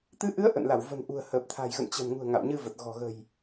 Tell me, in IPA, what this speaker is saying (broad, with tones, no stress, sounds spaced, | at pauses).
t̪ ɨ˨˦ ʔ ɨ˨˦ ə̯ ʔ ə̰˧˨ n l a˧˩ w v ə̤˨˩ n ʔ ṳ˨˩ ə̯ h əː˨˩ p̚ t̪ʰ a̤˨˩ j ɣ ə̰˧˨ n t͡ɕ ə̤˨˩ n ŋ ṳ˨˩ ə̯ ŋ a̰˧˨ w ɲ ɨ˧ v ə˨˩ t̚ ɣ ɔ̤˨˩ ɣ ə̤˨˩ j